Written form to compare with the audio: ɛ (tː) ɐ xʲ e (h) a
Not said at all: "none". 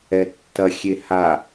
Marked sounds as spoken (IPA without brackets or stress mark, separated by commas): tː, h